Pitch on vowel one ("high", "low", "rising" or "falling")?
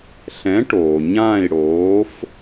rising